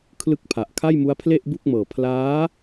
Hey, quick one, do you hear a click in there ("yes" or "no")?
no